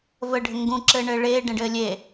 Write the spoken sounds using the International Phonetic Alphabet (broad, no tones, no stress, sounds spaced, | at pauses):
v ə ɖʱ ɘ ŋ ɡ ũ ǁ ɘː ɳ ɘː ɭ eː ɖ ẽ ɖ ɘː lʲ e